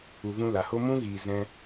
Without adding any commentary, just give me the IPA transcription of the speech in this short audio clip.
u˧ v ũ˦ l a˨ h o˦ m ũ˦ ɣ iː˨ z ɛ̃˧

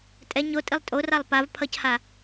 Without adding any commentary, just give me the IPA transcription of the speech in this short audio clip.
tʼ ɛ ɲ o tʼ i lˠ tʼ o r a lˠ p a v pʰ ʌ c h a

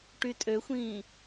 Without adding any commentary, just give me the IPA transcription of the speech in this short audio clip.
ʈ y tʼ ø xʷ ĩː

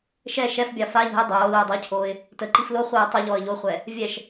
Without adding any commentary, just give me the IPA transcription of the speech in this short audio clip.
ʃ ɛ ʃ ɛ f bʲ ɑ f a ʎ ə̤ ɪ̯ dˤ oː l oː dˤ i cʰ oː ɪ̯ | t ə ǃ i f l o χʷ ɤː tˤ ə ʎ ɔ ə̯ ʎ o χʷ ɛ | vʲ ɛ ʃ

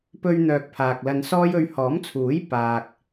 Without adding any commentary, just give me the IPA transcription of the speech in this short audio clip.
p ɵ˧ ɥ n̪ œː˨ k̚ pʰ aː˨ k̚ l ɐ˧ n s ɔː˥ j ɵ˧ ɥ h ɔː˨˥ m t͡sʰ uː˨˥ j p aː˨ k̚

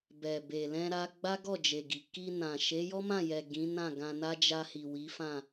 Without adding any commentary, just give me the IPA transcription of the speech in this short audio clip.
b ɛ˨ b e˨ l ɛ̃˧ ɾ a˧ ɡ͡b a˦ ɡ ɔ˦˨ d͡ʒ e˨ ɡ i˨ k i˧ n ã˨ ʃ e˨˦ j ɔ˦ m ã˦˨ j ɛ˨ ɡ ĩ˨˦ n ã˦˨ ɡ ã˧ n a˦ d͡ʒ a˧ h i˨ w i˨˦ f ã˦˨

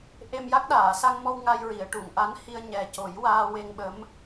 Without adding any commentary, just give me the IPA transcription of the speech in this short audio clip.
ʔ e˧ m j a˦˥ k̚ ɗ aː˨˩˨ s a˧ ŋ m ɔ˧ w ŋ a˧ j ɹ i˨˩˨ ə̯ ʈ u˨˩˨ ŋ ʔ a˧˥ n h i˧ ə̯ ɲ ɛ˨˩ c o˨˩˦ j w aː˧ w e˧ ŋ ɓ ə˧˥ m

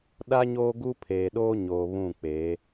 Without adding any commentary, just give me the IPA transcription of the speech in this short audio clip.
ɗ a˦ ɲ oː˦ ɡ u˦ pʰ eː˨ ɗ oː˦ ɲ oː˨ β ũ˦˨ k͡p e˨˦

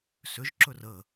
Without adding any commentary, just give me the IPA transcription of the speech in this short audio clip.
s ʏ ʒ ǁ ɵ r ə

